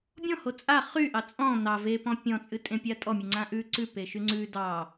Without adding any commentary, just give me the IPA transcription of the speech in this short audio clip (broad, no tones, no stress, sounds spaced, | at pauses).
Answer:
bʲ ɔ̃ h o t͡sʼ a χ y ʔ ɑ t͡sʼ ɔ̃ n ɑ v e p ɔ̃ pʲ ɔ̃ t͡sʼ ɨ tʼ ẽ pʲ a tʼ ɔ mʲ ɨ ŋ͡ǀ ã ʔ ʉ ǀ ʉ p e ʃ y ŋ͡ǀ ʉ d ɑ